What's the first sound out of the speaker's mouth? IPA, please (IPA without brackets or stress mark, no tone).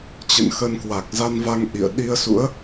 t͡ɕ